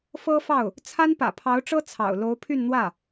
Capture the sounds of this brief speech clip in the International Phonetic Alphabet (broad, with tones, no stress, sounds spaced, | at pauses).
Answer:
f ɤ˥ f ɑ˥˩ ʊ̯ | t͡sʰ a˥ n p ä̰˨˩ pʰ ɑ˧˥ ʊ̯ ʈ͡ʂ ɤ˥ t͡sʰ ɑ̰˨˩ ʊ̯ l o˧˥ ʊ̯ pʰ y˥˧ n n̪ w ä˥˩